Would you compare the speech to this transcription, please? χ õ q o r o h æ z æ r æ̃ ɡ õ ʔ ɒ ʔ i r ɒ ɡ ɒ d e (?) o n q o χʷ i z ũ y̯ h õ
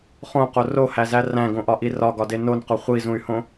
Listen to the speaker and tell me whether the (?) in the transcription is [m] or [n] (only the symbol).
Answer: n